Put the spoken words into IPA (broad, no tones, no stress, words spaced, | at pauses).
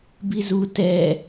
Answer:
bizu tɛ